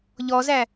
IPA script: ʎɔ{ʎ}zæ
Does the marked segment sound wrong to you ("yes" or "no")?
yes